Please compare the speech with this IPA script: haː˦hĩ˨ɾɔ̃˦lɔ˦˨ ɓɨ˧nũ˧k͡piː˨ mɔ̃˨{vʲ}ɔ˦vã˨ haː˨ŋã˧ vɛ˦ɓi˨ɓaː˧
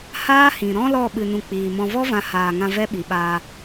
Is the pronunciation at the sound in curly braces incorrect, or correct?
incorrect